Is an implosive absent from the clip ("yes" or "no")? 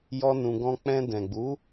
yes